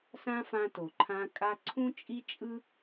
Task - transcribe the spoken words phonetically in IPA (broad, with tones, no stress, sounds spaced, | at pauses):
s ã˧ f ã˧ t o˨ ǃʰ ã˧ kʼ a˧ ǀʰ ũ˦ t͡ʃʼ i˦ t͡ʃʼ ɯ˦